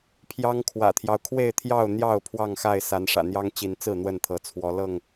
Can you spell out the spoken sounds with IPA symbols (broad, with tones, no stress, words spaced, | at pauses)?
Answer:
pʰjɑ˦ŋkʰwä̰˨˩t̪ʰjɑ˦ʊ̯ kʰwe˥˨ɪ̯t̪ʰjɑ˥˨ʊ̯n̪jɑ˥˨ʊ̯ pʰwɑ˥˨ŋxa˥˨ɪ̯ sa˨˦n ʂä̰˨˩n̪jɑ˦ŋt͡ɕi˨˦nt͡sɹ̩˥˨ n̪wə˥˨nt̪ʰɤ˨˦t͡sʰwɔ˨˦ lɤ˥˨ŋ